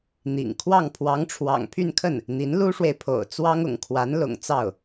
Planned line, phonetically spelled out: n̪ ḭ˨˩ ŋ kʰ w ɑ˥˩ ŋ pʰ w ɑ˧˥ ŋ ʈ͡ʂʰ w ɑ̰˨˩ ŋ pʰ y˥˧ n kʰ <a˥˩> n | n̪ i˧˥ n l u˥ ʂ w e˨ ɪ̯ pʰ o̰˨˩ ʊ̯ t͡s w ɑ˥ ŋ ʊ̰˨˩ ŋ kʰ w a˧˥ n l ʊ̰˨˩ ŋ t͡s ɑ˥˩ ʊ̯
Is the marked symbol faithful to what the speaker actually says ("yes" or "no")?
no